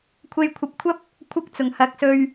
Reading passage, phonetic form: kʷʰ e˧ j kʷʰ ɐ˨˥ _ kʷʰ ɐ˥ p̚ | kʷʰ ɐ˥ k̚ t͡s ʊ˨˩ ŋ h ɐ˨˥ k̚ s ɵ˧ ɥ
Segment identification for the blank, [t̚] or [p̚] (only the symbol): p̚